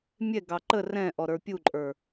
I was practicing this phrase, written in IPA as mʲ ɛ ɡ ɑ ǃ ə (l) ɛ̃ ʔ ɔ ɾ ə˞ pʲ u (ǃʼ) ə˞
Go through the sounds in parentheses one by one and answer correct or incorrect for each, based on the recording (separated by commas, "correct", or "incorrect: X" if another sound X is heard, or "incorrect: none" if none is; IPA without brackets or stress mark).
incorrect: r, correct